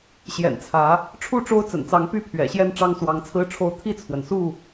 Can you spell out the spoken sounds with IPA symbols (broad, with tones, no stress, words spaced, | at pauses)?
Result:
ɕjɛ̰˨˩nt͡sʰä˨˦ | ʈ͡ʂʰu˥˨ʈ͡ʂo˦ʊ̯ t͡sə̰˨˩nt͡sɑ˨˦ŋ py˥˨pʰɥɛ̰˨˩ɕjɛ˥˨n ʈ͡ʂɑ˦ŋswɑ˨˦ŋt͡sʰɹ̩˦ʈ͡ʂʰo˥˨ʊ̯ t̪ʰi˥˨t͡sʰwə˩nsu˥˨